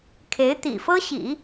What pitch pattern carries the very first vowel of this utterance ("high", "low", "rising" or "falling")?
rising